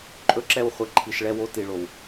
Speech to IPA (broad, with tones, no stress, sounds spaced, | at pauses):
ǃʼ ɵ˦ ǁ ɛ˦˨ w χʷ ɛ˧ ǃʰ i˨ ʃ ɭ ɛ˧ w o˧ t i˨ ɭ o˨ w